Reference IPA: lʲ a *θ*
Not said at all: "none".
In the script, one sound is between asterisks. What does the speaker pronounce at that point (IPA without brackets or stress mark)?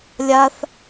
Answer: θ